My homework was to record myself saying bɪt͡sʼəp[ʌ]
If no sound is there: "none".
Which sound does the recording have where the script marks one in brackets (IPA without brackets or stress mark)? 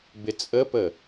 ə